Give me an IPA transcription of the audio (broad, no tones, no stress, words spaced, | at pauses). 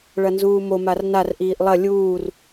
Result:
ɭɐnzuːmo marnar ʔiːʔlˠɐ lʲuːr